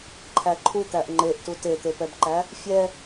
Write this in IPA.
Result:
ǃʰ æ ǃʰ u t̪ æ ʔ ŋ͡ǃ e ʔ t u t e t̪ e p ɛ b ǃ æ | fʲ ɛ

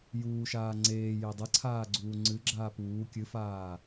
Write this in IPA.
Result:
j uː ʃ aː ŋ͡ǀ eː j e dˤ ɨ ǀʰ aː ɡ͡ǀ uː ŋ͡ǀ ɨ ɡ͡ǁ aː p uː kʲ ɨ f aː

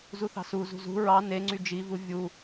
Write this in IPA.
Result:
z u θ ɑ̤ s u z ṳ z ṳ ɹ ɑ n e ŋ͡ǀ y d͡ʒ i v u vʲ u

